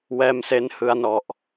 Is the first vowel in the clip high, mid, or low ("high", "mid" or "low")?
mid